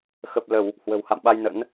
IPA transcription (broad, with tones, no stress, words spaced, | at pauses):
xə˨˩p̚lə˧˩˨w | hwə̤˨˩wha̰˧˨mɓa˧jnə̰˧˥n